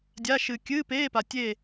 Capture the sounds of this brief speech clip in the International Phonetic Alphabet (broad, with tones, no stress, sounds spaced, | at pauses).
dʲ a˧˥˧ ʃ ɨ˧ kʲ ɨː˧˥˧ p eː˧˥˧ p a˧ tʲ e˥˧